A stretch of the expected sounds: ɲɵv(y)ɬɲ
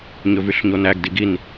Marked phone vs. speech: correct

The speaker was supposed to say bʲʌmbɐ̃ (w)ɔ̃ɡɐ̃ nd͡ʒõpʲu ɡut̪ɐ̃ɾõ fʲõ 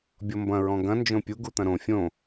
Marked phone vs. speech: incorrect: ɹ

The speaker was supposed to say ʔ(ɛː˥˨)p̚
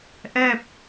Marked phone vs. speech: correct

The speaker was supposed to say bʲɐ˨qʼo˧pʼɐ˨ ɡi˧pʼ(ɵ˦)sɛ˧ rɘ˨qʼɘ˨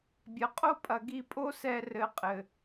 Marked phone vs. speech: incorrect: o˦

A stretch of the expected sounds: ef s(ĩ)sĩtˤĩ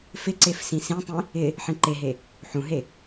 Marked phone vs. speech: correct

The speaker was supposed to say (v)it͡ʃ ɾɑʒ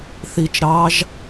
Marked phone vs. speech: incorrect: θ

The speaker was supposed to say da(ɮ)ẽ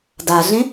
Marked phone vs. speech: correct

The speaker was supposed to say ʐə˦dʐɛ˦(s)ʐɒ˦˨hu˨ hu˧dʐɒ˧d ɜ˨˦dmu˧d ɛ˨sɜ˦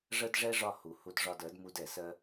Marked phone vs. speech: incorrect: none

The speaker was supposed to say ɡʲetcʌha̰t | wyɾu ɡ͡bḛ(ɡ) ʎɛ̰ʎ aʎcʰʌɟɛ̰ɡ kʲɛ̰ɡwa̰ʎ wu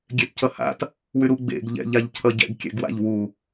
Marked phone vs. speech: correct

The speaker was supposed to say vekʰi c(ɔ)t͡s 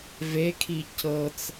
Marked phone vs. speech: incorrect: ɤ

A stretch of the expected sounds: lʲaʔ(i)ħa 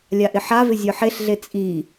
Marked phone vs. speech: incorrect: ɪ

